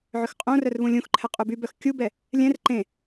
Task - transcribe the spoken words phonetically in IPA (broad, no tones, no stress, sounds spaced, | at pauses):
ʕ ʏ x qʼ õ r œ r β ũ lʲ ũ x ǃʰ ɛ qʼ u b y b œ x kʲ u b ɛ | lʲ ɛ̃ r ǃ ẽ